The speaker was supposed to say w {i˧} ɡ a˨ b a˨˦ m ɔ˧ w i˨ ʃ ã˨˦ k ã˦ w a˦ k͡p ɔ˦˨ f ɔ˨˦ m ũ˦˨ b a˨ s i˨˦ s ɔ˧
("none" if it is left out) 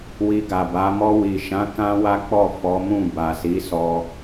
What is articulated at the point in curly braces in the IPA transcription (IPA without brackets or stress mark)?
i˧